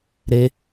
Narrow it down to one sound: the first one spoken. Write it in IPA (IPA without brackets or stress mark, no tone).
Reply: ɾ